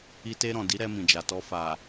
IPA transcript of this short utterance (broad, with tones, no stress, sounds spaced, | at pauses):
i˧ t e˧ ɾ ɔ̃˨ d i˨˦ ɾ ɛ˧ m ĩ˨ d͡ʒ a˨ t ɔ˧ f a˨